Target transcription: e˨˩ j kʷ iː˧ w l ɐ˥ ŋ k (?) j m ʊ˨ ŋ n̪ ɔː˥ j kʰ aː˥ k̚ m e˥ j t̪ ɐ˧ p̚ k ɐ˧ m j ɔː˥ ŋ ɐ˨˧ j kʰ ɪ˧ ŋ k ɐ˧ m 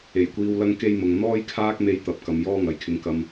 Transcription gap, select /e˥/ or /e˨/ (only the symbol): e˥